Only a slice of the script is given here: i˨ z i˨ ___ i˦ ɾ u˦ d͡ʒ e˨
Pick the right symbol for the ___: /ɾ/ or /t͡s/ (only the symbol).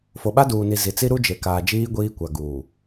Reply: t͡s